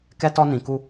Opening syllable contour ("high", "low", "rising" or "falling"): high